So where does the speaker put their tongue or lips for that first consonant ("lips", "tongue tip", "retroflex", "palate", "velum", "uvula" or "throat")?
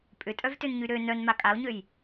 lips